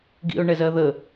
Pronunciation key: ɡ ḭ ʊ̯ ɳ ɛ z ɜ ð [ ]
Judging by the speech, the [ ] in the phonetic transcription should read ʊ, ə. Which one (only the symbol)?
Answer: ə